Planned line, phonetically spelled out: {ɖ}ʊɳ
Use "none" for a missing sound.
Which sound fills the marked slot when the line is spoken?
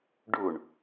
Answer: ɖ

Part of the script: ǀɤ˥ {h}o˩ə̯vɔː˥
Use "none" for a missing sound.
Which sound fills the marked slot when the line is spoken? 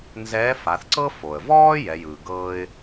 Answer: f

